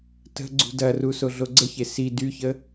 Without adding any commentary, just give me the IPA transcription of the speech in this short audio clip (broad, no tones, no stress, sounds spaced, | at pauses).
t ə̤ ɡ͡ǀ ṳ d ɐ r u s o ɮ o ɡ͡ǀ ə ç e s i d y ç ə